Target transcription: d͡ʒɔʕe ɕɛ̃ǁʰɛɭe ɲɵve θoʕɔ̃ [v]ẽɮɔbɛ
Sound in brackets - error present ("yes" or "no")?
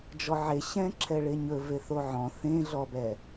yes